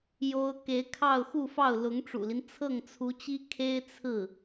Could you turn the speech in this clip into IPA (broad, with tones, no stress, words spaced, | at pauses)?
jo˥ʊ̯ ke˧˥ɪ̯kʰɑ˥˧ʊ̯xu˥˧fɑ˥˩ʊ̯ lʊ˧˥ŋʈ͡ʂṵ˨˩li˦n t͡sʰɤ˥˩ŋt͡sʰu˧˥t͡ɕi˥ kʰe˥ɪ̯ t͡sʰɹ̩˥˩